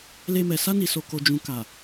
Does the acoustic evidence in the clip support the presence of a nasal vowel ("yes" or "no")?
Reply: yes